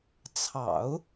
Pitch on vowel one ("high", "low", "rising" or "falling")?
low